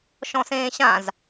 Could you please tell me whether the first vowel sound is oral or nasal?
nasal